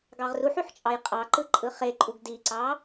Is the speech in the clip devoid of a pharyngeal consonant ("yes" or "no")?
no